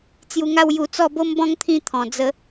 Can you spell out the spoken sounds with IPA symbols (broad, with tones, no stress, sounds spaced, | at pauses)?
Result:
t͡s j u˧ ŋ a˥˧ w j u˧ t͡s ɔ˥˧ b o˦ m b ɔ̃˦ ŋ t̪ʰ ĩ˥˧ t̪ʰ ɔ̃˨˩ d͡z ə˧